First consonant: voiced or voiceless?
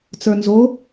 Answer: voiceless